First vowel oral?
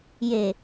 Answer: yes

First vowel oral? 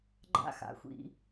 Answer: yes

